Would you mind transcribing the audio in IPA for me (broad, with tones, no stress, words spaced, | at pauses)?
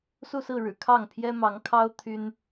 su˥˧sɹ̩˥˩ɻɻ̩˨˩ kʰɑ˥˩ŋpʰjɛ˥mɑ˧˥ŋkʰɑ˥ʊ̯ t̪ʰy˥n